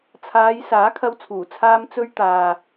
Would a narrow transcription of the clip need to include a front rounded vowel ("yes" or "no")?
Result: no